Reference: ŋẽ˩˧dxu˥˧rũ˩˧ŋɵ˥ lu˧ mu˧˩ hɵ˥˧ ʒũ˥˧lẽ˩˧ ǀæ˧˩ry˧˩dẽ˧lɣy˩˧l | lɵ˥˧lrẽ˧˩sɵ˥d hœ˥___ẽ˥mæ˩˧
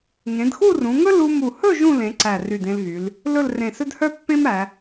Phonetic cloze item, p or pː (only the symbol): pː